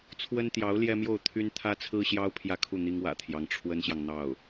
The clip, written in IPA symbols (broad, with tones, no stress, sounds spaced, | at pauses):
t͡sʰ w ə˥ n t̪ j ɑ˧˥ ʊ̯ l j ɛ˥ m j o˥˩ ʊ̯ t̪ʰ y˥ n t̪ʰ ä˥ t͡sʰ ɹ̩˥ ɕ j ɑ˥ ʊ̯ pʰ j ä˥˧ kʰ u˥˩ n̪ i˥ ŋ w ä̰˨˩ t̪ʰ j ɑ˧˥ ŋ ʈ͡ʂʰ w ə˥ n ɕ j ɑ˨ ŋ n̪ ɑ˥˩ ʊ̯